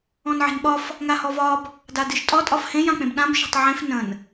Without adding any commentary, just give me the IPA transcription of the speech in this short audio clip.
ɔ̃ n ʕ e̤ n ɓ ɒ f | ŋ a h ɔ v ɒ b | d a d ɨ ʃ tʼ ɒ tʼ ɒ f h ẽ j ã k͡p ẽ b ɗ ã b ʃ e̤ tˤ ʕ ẽ f n ə̃ n

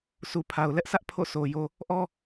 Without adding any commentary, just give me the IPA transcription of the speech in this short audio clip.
sʰ u˨ pʰ a˨ ʊ̯ l ɛ˦ ʔ sʰ ä˦ ʔ pʰ o̰˦˨ sʰ o˨ j o˦ | ʔ ɔ˦

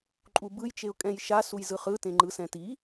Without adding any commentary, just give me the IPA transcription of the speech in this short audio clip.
ǃʼ u b ɯ j t͡ʃ e ʊ̯ kʼ ɛ̃ j ʃ a s u j z ɯ χ ɯ t ẽ ŋ͡ǃ ɯ s ɛ̃ t i

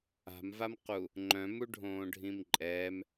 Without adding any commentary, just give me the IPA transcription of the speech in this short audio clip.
a̤ m v a m q u | ŋ͡ǃ œ̃ m u ɖʱ õː ɖʱ ĩ m ǃʼ ɛː m

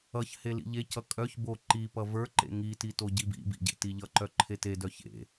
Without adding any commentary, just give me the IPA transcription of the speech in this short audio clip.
ʌ ç h e l ḭ ʎ e c ʌ kʼ œ ç b o ǃ i p ʌ v ə˞ ǃ ḛ ŋ i t i t o ɟ i b ḭ b ḭ ɟ ḛ t i ʎ ʌ ǃ œ ǃʰ e t e d œ ç ḛ

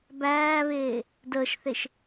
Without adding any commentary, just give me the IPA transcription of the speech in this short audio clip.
b æː β eː | d əː ʃ θ e ʃ

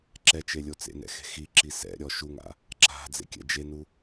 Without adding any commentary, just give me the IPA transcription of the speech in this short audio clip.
ǁ ɛ t͡ʃ e lʲ o t͡s ḛ n ɛ̰ x e̤ x i ǁ i s ɛ̰ ɾʲ ɔ ʃ u ŋ a̰ | ǁ a̤ d͡z ḛ kʲ ɛ̰ d͡ʒ e n u

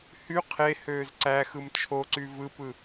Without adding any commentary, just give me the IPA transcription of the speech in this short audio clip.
h y qʰ e h øː z ǀ æ x ɯ m t͡ʃʰ o ǀ y v ɯ p ɯ

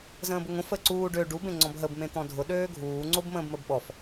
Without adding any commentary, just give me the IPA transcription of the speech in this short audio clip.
z ə̃ː b ʊ ŋ õ f ə ǀ uː ɖ ø ɖ u b ẽ ŋ͡ǀ ɔ̃ b ɦ ə b m ẽ t̪ ɔ̃ dʱ ʊ ɗ øː ɡʱ uː ŋ͡ǀ o b m ə̃ː b m ə b ɓ ɔ f

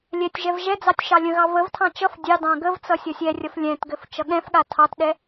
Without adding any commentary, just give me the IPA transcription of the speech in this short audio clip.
lʲ ɛ tʲ ʒ ɛ v ʒ ɛ d͡z ɑ tʲ ʃ ɑ lʲ ə̃ ɣ ɑ v ə v tʰ ɑ̃ t͡ʃ ʌ f dʲ ɑ d ɑ̃ ɡ ə v t͡s ʌ sʲ ʌ sʲ ɛ rʲ ʌ f lʲ ɛ̃ t ɡ ɘ f t͡ʃ ʌ ɠ ɛ̃ f ɠ a tʰ ɑ t ɗ ɛ

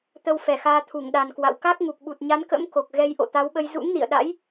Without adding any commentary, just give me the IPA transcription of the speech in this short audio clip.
t̪ ə˧ w f ɛ˧˩ x aː˧ t̪ʰ u˧˩ ŋ ɗ a˨˩ n k w a̰˧˨ w k a˦˥ k̚ ŋ u˨˩ k̚ ɓ u˨˩ t̚ ɲ a˨˦ n k ə̰˧˥ m k o˨˩ k̚ ɣ ɛ˧ j ʔ o̰˧˨ t̪ a˨˦ w ɓ ə˧ j z ṵ˧˥ ŋ n ḭ˧˨ ə̯ ɗ a̰˧˥ j

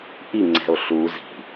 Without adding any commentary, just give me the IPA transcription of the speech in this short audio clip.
ʔ i ŋ͡ǀ ɛ̤ o̯ ɬ u z i̤

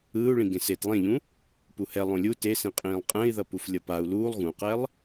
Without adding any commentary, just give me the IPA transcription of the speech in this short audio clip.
ɯː u̯ ɭ ĩ ɡ ẽ s e t lˠ ẽ ʎ ũ | p u h ɛ lˠ õ lʲ u t e s ĩ qʼ ĩː lˠ qʼ ɛ̃ i̯ ð ʌ p u f lʲ ʌ p a u̯ l uː lˠ ɣ ũ q ɛ lˠ

